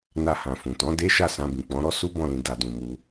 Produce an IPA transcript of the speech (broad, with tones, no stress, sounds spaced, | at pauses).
n a˧ h ã˨ f ũ˨ t ɔ̃˨˦ d e˦ ʃ a˦˨ s ã˧ b ĩ˨ k͡p ɔ̃˨˦ ɾ ɔ˦ s u˦ b ɔ̃˦˨ l ĩ˧ d a˧ d ũ˨ m u˧